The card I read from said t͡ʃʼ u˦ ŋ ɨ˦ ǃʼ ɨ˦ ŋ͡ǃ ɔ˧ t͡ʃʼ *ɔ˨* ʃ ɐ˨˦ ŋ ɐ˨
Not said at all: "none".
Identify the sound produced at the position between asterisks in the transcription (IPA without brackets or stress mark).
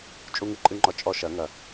ɔ˦